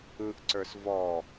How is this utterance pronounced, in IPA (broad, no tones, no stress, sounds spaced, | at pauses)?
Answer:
ɯ ʔ ǀ ə˞ s v ɔ